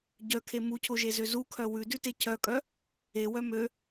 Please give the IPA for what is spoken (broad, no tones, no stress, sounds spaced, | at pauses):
ɟ œ kʰ e m u cʰ o ʒ e z ø z u kʰ œ w ʉ d ʉ t e cʰ œ kʼ œ | e w œ m ø